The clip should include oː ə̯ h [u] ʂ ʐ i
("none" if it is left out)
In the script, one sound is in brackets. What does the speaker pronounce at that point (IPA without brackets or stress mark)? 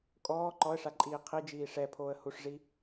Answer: u